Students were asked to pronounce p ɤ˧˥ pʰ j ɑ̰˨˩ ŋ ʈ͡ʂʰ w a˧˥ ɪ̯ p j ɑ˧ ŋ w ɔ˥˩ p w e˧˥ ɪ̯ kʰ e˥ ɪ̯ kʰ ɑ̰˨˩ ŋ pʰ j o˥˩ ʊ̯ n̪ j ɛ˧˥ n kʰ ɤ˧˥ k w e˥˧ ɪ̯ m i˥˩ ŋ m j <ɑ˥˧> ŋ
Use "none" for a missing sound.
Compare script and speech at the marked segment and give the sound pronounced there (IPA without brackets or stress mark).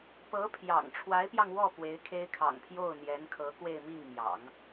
ɑ̰˨˩˦